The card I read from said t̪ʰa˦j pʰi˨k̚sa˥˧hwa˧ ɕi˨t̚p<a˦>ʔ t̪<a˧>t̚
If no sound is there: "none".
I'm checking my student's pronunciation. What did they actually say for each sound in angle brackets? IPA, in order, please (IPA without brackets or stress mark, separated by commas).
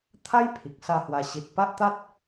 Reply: a˦, a˦